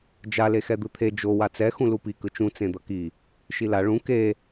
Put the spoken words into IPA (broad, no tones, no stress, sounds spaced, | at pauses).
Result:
d͡ʒ a l e x ɛ d̪ ɯ t̪ʰ e d͡ʒ o w a t͡s ɛ x ũ l u p i k ɯ t͡ʃ ũ t͡s ẽ d̪ ʌ k i | ʃ i l a ɭ ũ k e